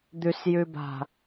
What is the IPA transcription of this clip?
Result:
d̪ ʉ s j ʉ b a̤

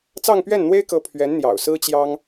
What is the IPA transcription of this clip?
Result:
t͡s ɑ˥˧ ŋ p ɥ ɛ˥˩ n n̪ w e˥ ɪ̯ k ɤ˧˥ pʰ ɥ ɛ˧˥ n n̪ j ɑ̰˨˩ ʊ̯ s ɹ̩˥ t͡ɕ j ɑ˥ ŋ

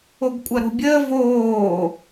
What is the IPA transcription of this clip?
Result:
o ɡ kʷʼ ɐ ɾ o̤ bʲ əː v oː

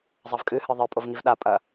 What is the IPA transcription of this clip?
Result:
zˤ ɐ v kʼ ɨ h ɨ ðˤ ɘ pʼ o v ŋ i v ɗ a pʼ ɐ

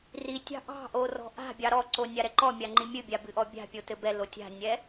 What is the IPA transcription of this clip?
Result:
r i tʲ ɑ̤ ʔ ɑ̤ ʔ o r ɔ̤ ʔ a̤ bʲ ɑ ɾ ɔ ǀ o nʲ a ɾ ɛ ǃ ɔ mʲ a ŋ͡ǃ i mʲ ɨ bʲ a b ɨ ʔ ɔ bʲ a̤ pʲ o t ɘ b ɛ l o tʲ a̤ nʲ ɛ

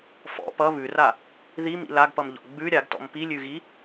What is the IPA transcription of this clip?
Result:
f ɔ̰ p ʌ β ʉ r a | ð i m ḭ l a ɡ p ʌ m ʎ ɔ̰ ɡ͡b ʉ ɾʲ a ɡ t ɔ̰ m p i lʲ ʉ ɣ i

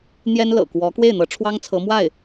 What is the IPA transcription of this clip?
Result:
n̪ j ɛ˥ n l ɤ̰˨˩ k w ɔ˧˥ k w e˥˩ ɪ̯ n̪ ɤ˧˥ ʈ͡ʂʰ w ɑ˥ ŋ t͡sʰ ɤ˧˥ m w a˥˩ ɪ̯

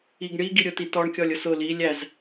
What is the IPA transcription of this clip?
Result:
i ɡ ɳ i ɡ i ɾʲ ʊ t i t ɔ ɳ kʲ ɔ lʲ ʊ s ʊ l i lʲ æ z

